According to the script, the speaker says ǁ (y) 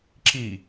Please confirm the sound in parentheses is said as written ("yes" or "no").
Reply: no